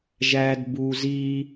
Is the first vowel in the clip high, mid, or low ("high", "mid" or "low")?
low